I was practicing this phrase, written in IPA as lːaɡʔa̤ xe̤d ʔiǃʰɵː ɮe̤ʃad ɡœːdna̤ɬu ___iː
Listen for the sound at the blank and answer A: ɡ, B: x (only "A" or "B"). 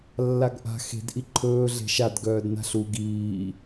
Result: A